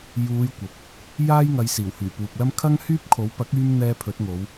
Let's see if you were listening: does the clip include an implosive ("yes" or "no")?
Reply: no